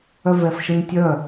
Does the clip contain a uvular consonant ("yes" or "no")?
no